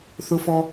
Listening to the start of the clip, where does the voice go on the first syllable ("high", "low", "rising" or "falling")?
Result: high